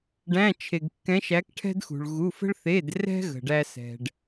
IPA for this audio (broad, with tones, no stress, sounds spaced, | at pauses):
ɖ æ̃˧˥˧ t͡ʃʰ e˨ ɡ kː ɛ̃˧˥ ʃ æ˧˥ k ʈʰ ɛ̤˥ d x ṳ˨ ɭ ɣ u˧˥˧ f ə̤˥ ɭ θ e˧˥˧ d r ɛ̤˥ ɣ ə̤˨ ɖ æ˥ s ɛ̤˨ ɖ